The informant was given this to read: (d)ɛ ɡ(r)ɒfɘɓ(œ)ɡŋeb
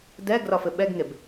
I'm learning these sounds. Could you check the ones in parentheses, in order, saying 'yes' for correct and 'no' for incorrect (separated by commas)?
yes, yes, no